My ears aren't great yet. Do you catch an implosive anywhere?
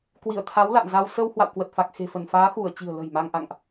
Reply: no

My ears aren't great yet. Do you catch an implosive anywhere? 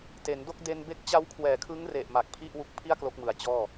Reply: no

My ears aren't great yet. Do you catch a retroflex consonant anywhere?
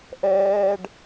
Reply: yes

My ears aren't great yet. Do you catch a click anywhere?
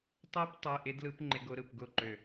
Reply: yes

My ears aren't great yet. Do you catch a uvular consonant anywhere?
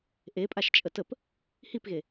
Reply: no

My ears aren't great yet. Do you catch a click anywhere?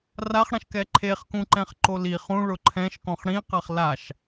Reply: yes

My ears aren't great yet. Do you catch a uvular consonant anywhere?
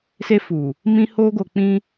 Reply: no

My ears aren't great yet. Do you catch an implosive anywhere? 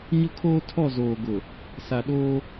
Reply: yes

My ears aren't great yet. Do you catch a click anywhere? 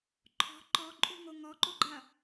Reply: yes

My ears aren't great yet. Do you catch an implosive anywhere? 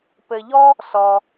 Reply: no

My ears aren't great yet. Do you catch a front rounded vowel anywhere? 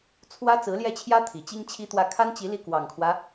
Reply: no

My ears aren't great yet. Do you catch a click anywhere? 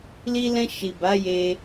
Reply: no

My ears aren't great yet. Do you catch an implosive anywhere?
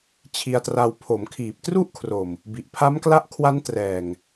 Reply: no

